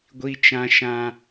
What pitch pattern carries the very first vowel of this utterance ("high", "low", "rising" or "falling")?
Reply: high